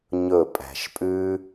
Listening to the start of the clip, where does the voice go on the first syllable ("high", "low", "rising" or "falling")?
falling